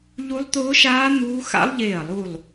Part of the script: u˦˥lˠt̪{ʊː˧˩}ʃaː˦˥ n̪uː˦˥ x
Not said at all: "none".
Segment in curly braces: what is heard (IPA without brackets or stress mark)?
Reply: ʊː˦˥